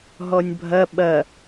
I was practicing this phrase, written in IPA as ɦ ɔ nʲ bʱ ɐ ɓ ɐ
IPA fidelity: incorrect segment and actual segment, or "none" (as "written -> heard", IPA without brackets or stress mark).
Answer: none